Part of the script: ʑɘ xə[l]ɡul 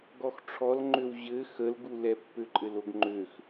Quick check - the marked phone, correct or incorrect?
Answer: correct